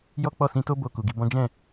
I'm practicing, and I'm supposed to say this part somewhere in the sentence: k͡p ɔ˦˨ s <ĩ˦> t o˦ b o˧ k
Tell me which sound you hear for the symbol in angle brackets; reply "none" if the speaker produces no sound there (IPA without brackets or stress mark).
ĩ˧